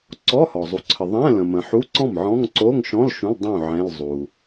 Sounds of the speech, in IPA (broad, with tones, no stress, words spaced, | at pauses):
ǀɔ˧˥˧hɔ˩ zˤu˩ǀʰə˩ ðˤɛ̃˧˥˧ lə̃˩mə̃˩ħu˧˥˧ ǀɔ̃˥˩mʕɔ̃˧˥˧ŋ ǀo˧˥˧ŋʃɔ̃˧˥˧l ʃũ˧˥˧l dˤũ˥˩ ʕɛ̃˧˥˧lzˤu˩